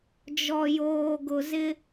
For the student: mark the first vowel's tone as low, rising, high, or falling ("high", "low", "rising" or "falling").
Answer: low